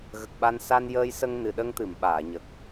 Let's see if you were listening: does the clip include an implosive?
yes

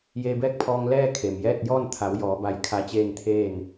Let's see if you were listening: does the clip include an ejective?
no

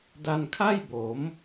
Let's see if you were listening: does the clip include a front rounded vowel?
no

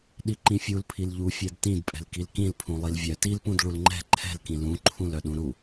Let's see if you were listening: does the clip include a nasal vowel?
yes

